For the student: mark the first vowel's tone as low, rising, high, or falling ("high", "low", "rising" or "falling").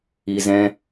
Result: low